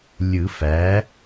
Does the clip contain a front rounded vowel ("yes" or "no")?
no